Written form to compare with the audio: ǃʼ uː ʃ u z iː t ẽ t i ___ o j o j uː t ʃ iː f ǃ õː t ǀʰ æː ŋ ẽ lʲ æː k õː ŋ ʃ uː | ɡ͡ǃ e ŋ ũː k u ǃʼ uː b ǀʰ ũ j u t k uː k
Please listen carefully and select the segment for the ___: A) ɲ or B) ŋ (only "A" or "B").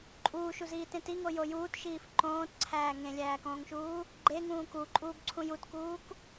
B